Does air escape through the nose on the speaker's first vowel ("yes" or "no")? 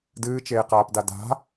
no